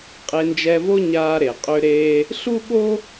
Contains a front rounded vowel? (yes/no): yes